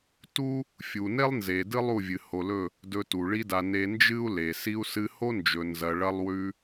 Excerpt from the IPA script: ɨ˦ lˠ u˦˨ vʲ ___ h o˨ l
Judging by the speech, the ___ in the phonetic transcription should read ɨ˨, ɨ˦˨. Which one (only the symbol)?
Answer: ɨ˨